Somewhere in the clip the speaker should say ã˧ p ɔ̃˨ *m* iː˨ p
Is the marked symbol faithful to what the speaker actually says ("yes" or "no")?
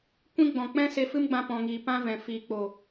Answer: no